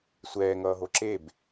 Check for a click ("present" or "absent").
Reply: present